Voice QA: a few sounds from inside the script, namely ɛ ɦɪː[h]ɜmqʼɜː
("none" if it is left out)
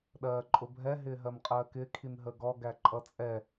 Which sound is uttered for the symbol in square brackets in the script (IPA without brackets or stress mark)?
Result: ɦ